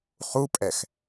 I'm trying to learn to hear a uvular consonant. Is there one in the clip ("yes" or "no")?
yes